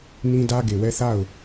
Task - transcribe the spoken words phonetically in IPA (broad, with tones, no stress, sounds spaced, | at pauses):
n ĩ˦ d ä˦ ɡ e˨ w ɛ˦ θ a˦˨ ʊ̯